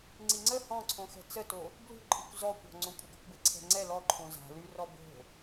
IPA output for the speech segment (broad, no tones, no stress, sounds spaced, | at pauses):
ŋ͡ǀ i ŋ͡ǀ ə h ɔ̃ ǀʰ õ x ɛ̤ t͡s ə t o | b l ṳ ǃʼ i kʷ z ɔ kʷ ɔ̤ ŋ͡ǀ õ kʷʼ ə ɡ ɔ kʷ b ɛ ǀʰ ɛ̤ ŋ͡ǀ ɛ l ɔ ǃʰ õ z a̤ l y r ɔ b o̤